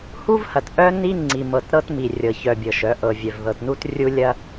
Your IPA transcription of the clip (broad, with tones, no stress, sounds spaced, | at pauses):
h u˦ v h ɐ˨ t ʔ œ˦ n i˦ ŋ͡ǀ i˨ m ɤ˨ t ɾ ɤ˦ t m i˨ rʲ ɤ˨ ç œ˨ bʲ ɤ˨ ʃ œ˨˦ ʔ ɤ˨ vʲ œ˨ v ð ɤ˨ t n u˦ t rʲ u˦ lʲ ɐ˦